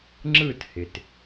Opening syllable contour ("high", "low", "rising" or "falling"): falling